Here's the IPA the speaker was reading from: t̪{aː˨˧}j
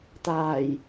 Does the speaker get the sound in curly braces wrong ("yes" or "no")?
yes